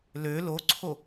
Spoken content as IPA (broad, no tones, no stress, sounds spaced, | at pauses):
l ø l o ǀʰ o